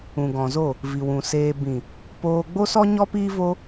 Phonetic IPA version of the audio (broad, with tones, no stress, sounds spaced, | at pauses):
ũ˨ ɡ ɔ̃˨ z o˦˨ | v i˨ w ũ˨ s eː˧ b ĩ˨ | p oː˧ ɡ͡b o˦ s ɔ˦ ɲ ɔ˦ p iː˦ v o˦